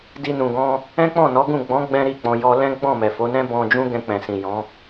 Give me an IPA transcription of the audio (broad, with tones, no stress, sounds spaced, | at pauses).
d i˧ n ũ˨ ɡ ɔ̃˧ | ɛ̃˦ k͡p ɔ̃˦˨ n ɔ˨˦ ɡ ũ˦˨ ɡ͡b ɔ̃˨˦ ɡ͡b ɛ̃˦ ɾ i˦˨ k͡p ɔ̃˧ j ɔ˧ l ɛ̃˦ ɡ͡b ɔ̃˦˨ m ɛ˨ f o˨˦ n ɛ̃˦ b ɔ̃˧ d͡ʒ ũ˦ ɡ ɛ̃˧ k͡p ɛ̃˨ s ĩ˨ j ɔ̃˨˦